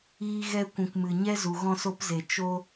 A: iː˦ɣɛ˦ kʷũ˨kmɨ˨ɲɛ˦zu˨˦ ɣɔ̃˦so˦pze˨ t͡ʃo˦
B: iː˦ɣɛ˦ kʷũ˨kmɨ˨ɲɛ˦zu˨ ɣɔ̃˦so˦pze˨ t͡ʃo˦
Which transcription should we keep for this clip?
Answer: B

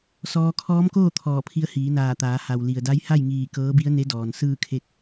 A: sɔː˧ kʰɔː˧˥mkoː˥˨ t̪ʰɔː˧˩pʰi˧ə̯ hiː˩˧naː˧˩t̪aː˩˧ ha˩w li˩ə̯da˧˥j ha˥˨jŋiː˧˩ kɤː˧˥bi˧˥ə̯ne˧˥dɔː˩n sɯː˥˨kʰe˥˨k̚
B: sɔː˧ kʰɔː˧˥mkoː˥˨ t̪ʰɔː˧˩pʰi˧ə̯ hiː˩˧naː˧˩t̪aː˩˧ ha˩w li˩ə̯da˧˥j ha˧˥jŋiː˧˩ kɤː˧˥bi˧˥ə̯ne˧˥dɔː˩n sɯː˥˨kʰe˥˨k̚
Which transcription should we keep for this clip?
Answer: A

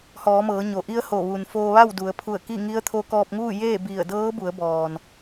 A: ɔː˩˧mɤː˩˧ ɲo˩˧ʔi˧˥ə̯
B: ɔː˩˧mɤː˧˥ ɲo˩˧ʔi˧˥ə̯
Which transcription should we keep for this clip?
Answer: A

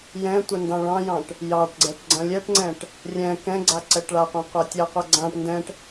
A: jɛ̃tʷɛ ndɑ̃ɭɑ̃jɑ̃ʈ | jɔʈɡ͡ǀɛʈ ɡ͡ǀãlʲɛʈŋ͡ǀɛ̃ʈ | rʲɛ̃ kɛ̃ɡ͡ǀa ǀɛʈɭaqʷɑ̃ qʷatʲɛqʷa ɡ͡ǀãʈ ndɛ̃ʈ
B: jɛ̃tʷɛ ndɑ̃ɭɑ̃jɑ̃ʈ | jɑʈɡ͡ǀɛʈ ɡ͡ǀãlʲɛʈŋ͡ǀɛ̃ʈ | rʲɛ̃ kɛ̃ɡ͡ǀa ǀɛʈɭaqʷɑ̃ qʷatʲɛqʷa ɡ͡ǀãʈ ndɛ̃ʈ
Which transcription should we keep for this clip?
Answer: B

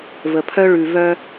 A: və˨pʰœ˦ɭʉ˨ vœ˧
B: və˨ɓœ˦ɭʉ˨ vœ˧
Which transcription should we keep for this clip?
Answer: A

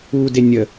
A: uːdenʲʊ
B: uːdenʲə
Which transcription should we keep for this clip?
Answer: B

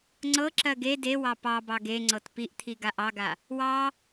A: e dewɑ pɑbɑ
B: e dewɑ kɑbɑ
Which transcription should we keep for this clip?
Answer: A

